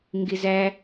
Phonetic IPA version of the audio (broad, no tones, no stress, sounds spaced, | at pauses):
ŋ ɡ ɪ z æ